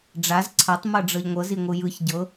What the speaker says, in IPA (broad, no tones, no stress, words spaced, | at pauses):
ɖ͡ʐaz ǀʰatˤ mɤɖ͡ʐɤʎŋʷɤz iŋʷɯjɯç ɟɤ